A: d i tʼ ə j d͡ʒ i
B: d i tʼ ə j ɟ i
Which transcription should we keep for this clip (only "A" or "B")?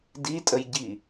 B